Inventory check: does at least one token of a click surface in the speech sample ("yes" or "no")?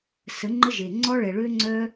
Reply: yes